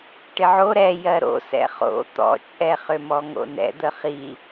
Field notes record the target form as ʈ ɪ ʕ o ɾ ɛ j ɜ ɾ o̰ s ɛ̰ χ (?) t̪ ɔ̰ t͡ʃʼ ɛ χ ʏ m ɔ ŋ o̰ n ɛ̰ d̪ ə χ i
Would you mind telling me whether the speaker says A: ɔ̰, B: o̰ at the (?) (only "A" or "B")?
B